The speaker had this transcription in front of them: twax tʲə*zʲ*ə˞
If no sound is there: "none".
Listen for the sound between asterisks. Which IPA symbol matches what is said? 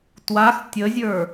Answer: zʲ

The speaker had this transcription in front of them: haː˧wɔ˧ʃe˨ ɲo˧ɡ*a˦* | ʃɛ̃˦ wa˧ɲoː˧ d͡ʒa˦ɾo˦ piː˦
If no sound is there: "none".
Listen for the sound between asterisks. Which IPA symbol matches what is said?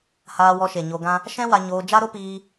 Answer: ã˦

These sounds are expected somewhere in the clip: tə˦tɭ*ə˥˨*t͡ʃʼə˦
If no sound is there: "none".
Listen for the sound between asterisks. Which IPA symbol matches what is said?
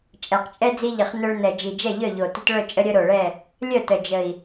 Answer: œ˥˨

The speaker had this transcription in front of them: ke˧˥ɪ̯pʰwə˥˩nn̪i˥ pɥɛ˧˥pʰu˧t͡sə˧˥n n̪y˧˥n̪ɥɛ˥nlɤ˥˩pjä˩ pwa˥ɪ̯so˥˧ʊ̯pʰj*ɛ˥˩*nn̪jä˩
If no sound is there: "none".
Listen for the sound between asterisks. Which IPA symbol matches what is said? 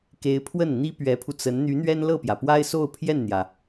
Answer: ɛ˥˩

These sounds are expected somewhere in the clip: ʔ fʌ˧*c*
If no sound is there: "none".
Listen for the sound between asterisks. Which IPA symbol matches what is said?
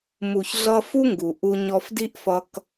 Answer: k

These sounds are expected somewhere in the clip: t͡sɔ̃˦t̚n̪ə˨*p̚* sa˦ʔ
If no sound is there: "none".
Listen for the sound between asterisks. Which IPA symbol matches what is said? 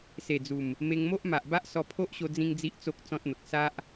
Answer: k̚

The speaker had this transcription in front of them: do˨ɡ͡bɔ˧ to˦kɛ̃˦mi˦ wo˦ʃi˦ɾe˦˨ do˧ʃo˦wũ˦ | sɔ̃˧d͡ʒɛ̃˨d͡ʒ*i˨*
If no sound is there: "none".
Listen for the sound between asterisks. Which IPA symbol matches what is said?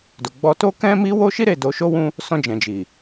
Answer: i˨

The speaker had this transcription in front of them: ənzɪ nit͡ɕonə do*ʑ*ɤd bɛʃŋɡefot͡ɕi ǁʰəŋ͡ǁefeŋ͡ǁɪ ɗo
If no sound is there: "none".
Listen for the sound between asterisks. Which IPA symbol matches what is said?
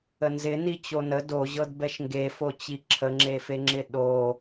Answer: ʑ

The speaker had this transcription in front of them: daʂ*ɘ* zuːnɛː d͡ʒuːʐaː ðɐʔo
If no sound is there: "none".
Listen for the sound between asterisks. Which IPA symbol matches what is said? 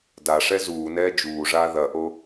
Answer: ɛ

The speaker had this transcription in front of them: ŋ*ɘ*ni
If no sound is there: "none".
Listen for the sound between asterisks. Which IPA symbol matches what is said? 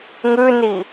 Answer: ʉ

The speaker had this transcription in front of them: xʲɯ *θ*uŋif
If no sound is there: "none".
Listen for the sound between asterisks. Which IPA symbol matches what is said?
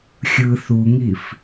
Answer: θ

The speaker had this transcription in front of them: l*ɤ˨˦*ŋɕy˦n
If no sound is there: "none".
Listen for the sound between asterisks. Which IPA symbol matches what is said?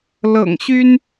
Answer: ɤ̰˨˩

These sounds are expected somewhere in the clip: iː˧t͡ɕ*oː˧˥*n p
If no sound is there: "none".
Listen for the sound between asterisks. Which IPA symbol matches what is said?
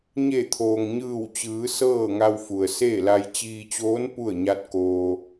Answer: oː˧˥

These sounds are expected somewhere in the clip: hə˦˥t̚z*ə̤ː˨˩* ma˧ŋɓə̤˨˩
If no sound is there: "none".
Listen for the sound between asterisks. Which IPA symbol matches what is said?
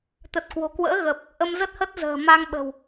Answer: ə̤ː˨˩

